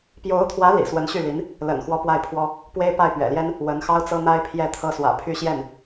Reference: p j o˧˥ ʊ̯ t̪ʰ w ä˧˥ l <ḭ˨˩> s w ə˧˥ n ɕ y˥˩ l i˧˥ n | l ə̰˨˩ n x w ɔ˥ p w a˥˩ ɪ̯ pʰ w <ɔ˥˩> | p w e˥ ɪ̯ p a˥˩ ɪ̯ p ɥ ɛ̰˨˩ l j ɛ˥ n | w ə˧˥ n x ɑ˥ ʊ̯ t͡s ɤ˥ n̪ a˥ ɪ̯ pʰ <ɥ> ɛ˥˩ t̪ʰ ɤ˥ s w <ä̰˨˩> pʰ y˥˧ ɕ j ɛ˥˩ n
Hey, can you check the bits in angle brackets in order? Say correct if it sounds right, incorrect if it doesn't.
correct, incorrect, incorrect, correct

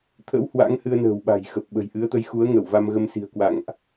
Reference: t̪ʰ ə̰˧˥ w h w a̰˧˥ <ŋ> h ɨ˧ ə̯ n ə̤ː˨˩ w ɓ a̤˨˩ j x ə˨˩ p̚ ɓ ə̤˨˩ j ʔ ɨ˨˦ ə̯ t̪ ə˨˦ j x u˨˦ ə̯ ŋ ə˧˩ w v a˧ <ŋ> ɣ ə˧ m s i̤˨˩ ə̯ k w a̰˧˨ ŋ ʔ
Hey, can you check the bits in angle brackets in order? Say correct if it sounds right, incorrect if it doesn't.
correct, incorrect

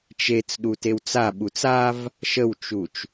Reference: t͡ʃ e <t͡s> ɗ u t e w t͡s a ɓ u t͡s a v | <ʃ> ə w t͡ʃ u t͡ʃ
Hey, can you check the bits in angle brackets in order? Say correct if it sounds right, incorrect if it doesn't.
correct, correct

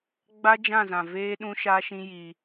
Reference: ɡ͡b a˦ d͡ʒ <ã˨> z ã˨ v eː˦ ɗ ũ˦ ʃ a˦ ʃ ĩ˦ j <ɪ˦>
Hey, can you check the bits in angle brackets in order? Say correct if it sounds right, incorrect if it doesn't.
incorrect, incorrect

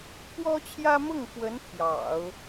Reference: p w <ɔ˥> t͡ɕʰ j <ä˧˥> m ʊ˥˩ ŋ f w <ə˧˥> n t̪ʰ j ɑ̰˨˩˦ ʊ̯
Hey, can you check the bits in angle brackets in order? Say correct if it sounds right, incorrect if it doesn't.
correct, incorrect, correct

